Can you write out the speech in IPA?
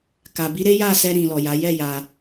k a˨ b i˨˦ ɾ e˦ j a˦˨ s ɛ˧ ɾ ĩ˨ l ɔ˨ j a˨˦ j ɛ˦˨ j a˧

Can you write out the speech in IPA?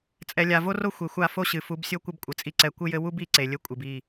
t͡sʼ ɛ˨ lʲ a˨ v o˦ r o˦ xʷ e˨ xʷ a˦˨ f o˦ ɕ ɨ˨ f u˨˦ b sʲ o˦ kʷ ɘ˦ b kʷʼ ɘ˨ t͡sʼ i˦ ǀ ɛ˦˨ kʷ ɨ˦ j ɘ˦ w u˦ b i˨˦ ǀ e˨ lʲ ɘ˦ kʷʼ ɨ˨ b i˦˨

